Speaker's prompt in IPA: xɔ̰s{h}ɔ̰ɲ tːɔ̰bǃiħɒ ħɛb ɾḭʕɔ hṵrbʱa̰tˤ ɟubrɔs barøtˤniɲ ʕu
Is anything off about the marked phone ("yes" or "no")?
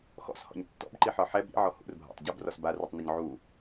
no